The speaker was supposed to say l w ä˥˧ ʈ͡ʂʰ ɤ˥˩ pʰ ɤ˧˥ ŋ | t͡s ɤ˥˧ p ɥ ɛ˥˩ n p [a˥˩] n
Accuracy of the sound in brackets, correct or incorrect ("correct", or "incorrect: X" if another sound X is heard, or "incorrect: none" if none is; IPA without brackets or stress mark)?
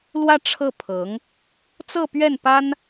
incorrect: a˥